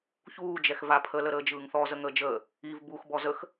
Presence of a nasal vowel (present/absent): absent